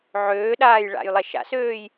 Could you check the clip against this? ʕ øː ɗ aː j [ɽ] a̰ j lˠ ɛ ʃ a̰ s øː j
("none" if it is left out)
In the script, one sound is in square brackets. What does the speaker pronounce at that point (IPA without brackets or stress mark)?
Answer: ɭ